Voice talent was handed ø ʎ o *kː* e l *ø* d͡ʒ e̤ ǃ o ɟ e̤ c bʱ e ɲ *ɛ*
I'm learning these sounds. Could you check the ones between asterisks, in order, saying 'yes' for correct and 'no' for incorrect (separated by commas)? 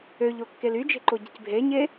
yes, no, no